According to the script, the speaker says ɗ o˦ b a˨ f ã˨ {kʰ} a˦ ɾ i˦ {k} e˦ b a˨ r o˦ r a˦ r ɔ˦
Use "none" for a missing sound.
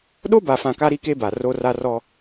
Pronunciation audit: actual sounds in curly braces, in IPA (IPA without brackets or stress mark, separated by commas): k, k